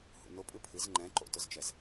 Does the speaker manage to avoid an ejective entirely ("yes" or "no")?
no